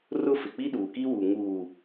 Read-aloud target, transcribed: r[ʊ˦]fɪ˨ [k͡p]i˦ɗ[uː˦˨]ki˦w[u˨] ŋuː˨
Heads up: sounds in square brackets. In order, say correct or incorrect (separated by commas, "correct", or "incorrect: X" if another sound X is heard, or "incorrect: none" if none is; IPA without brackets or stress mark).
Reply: correct, correct, incorrect: uː˨, correct